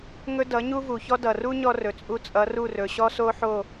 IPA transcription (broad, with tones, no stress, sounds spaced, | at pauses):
ŋ ɵ˦ d ʌ˨˦ ɲ u˦ v u˨ ç ɔ˦ d ʌ˨ r u˦ ɲ ɔ˧ r ɵ˨ t͡sʼ u˧ t͡sʼ ʌ˨˦ r u˦˨ r ɵ˨ ɕ ɔ˦ s o˦ ħ o˦˨